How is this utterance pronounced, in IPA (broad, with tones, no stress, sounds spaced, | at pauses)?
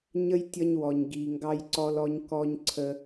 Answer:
ɲ ə˥ j tʲ ʌ˦ ɲ w ɔ˨ ɲ ɡ i˨ ŋ ɡ ɑ˦ j ǀ ɔ˥ l ɔ˥ ɲ k ɔ˦ ɲ ǀʰ ə˦